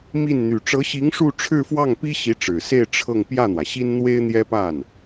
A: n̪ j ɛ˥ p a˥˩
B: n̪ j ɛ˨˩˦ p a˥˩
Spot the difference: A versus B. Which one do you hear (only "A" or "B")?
A